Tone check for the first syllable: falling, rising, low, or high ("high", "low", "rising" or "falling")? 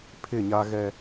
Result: falling